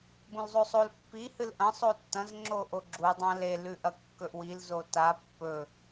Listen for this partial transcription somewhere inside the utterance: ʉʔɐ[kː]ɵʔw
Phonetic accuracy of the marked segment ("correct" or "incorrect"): correct